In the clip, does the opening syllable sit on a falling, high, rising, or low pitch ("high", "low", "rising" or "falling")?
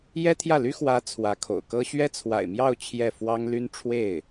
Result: high